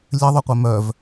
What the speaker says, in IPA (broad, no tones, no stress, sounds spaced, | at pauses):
lʲ ɘ ðˤ o qʷ œ m œ v